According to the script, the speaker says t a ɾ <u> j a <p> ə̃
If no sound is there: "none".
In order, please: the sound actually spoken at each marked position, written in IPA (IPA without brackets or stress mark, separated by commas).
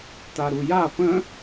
u, p